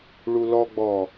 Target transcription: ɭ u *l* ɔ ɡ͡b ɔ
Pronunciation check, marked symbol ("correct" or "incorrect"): correct